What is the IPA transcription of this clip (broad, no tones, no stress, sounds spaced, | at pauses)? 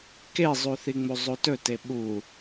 k e zˤ u θ i ŋ͡m u zˤ u t ɵ t e ɓ u